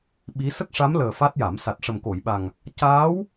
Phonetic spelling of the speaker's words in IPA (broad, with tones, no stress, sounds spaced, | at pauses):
ɓ i˧˥ s ə˦˥ k̚ ʂ a˧˥ m l əː˨˩ f a˦˥ t̚ j a˨˩˦ m s a˨˩ t̚ ʂ ə˨˩ m k o˨˩˨ j ɓ a˨˩ ŋ | c aː˧˥ w